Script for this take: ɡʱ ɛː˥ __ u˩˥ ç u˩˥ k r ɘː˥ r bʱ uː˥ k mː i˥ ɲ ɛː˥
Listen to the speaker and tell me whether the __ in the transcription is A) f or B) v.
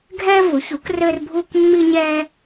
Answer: B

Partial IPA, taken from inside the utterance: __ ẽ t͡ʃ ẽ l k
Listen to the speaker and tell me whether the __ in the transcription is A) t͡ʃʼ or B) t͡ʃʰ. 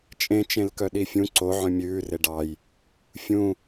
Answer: A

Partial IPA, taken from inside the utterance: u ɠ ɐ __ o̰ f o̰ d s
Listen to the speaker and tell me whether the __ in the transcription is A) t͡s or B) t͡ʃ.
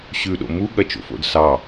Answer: B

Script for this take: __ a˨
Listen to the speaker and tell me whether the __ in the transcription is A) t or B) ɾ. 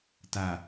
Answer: A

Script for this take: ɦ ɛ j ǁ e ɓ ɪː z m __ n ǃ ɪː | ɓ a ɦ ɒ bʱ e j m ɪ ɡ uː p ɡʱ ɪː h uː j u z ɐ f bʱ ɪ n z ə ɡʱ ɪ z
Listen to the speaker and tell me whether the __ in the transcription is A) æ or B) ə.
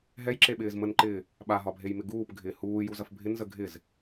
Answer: B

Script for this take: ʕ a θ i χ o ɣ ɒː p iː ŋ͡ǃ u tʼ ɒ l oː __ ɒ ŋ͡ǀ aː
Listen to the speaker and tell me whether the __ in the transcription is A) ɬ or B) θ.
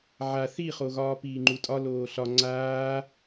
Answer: A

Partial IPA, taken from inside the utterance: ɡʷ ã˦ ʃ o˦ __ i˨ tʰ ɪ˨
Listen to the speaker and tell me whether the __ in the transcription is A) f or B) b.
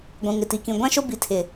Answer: B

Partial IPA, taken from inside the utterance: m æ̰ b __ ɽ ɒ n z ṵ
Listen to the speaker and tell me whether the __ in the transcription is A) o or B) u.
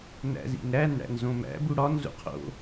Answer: B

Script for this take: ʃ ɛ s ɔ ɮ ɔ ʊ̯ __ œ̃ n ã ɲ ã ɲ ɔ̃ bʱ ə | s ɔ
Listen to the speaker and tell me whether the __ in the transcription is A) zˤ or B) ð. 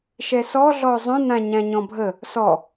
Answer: A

